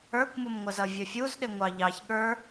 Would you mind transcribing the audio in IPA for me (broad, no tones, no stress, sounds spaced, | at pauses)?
ə˞ kʷ m ʊ m ŋʷ ə z ʌ vʲ ə fʲ u z ɗ ɪ ŋʷ ɑ ʎ ɑ ç ɠ ə˞